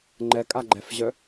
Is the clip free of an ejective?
no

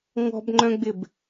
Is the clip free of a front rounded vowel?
no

